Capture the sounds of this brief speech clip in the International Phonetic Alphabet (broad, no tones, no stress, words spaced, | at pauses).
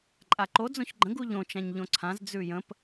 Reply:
ǃʼaǃo d͡zõçɡ͡ǃə̃ ɡuʎõ t͡ʃãɲʎõǀʰãz d͡zʉjə̃p